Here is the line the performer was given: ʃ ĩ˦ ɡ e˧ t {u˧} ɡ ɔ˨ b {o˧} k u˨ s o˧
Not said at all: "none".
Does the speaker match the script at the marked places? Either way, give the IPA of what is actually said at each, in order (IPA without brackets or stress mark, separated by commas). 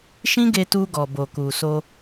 u˧, o˨